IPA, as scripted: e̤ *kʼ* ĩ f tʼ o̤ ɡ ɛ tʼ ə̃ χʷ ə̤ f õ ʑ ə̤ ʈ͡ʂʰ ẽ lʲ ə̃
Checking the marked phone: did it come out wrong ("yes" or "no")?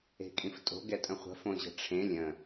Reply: no